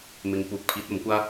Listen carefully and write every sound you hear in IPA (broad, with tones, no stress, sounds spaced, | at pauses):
m ɪ˨ ŋ p uː˨˥ k̚ pʰ iː˨˥ t̚ ɐ˨˥ m kʷ aː˥